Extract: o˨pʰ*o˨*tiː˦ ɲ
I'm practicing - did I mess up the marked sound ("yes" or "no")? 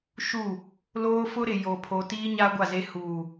no